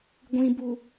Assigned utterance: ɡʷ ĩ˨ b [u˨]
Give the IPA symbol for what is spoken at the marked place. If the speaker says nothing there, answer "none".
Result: u˨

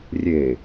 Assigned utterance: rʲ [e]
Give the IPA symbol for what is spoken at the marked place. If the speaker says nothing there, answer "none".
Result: e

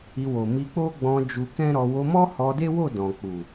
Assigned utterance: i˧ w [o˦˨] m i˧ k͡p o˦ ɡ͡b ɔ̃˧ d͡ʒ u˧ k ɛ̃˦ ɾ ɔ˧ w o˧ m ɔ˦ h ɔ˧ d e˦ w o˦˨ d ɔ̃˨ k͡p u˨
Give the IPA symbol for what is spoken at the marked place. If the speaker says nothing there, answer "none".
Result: o˨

